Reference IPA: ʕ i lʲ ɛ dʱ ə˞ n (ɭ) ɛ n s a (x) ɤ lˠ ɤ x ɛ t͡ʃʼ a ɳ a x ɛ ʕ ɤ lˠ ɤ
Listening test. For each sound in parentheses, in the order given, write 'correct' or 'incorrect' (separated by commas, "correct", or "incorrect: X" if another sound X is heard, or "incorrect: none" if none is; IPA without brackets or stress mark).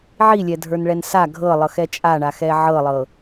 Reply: correct, incorrect: ɡʱ